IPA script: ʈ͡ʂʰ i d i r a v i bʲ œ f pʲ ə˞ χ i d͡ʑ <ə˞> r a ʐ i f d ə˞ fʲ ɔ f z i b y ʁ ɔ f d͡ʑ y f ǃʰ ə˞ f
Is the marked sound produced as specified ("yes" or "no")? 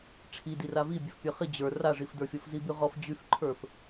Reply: yes